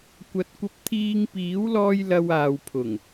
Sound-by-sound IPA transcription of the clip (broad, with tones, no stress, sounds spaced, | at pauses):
kʷ ɐ˨˥ t̚ kʷ ɐ˧ p̚ t̪ʰ iː˧ ŋ p iː˨˥ w l ɔː˧ j l ɐ˧ w aː˨ w pʰ ʊ˨˩ ŋ